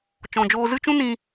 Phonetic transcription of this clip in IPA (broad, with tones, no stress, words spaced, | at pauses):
t͡ʃɔ̃˨d͡ʒoː˧zɨ˦t͡ʃũ˦ nĩ˧